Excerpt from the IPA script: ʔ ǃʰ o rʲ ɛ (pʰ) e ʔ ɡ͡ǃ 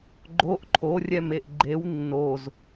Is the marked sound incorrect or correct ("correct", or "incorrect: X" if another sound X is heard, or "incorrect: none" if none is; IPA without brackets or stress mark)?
incorrect: m